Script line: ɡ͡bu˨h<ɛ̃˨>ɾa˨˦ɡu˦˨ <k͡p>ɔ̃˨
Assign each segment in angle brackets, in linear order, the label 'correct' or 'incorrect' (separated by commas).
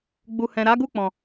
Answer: correct, correct